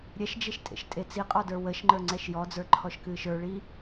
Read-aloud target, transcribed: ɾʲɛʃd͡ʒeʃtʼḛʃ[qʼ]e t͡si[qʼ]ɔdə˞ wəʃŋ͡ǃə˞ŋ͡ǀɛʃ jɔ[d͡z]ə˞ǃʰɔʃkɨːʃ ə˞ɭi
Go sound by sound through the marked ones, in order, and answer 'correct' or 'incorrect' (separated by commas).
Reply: incorrect, correct, correct